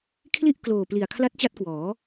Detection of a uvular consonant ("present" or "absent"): absent